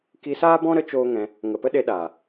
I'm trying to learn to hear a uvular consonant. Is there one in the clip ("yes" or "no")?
no